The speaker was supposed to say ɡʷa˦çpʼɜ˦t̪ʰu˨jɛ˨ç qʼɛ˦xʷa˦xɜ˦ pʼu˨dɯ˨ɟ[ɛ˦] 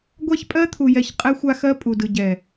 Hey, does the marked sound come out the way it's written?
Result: no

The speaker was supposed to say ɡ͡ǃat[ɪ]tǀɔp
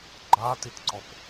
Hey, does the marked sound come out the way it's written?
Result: no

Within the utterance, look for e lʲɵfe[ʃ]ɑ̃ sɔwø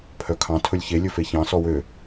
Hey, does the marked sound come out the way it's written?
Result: no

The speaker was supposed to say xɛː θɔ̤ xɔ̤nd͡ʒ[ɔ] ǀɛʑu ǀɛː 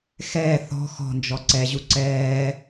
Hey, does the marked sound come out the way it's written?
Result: yes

